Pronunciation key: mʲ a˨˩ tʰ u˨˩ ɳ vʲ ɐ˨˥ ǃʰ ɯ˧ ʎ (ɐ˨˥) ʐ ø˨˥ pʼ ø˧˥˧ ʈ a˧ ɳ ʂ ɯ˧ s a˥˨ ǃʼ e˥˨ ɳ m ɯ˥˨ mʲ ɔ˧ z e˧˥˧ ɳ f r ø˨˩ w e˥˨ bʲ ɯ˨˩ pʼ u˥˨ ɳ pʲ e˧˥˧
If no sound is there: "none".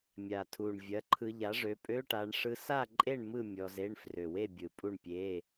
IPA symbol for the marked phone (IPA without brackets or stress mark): a˨˥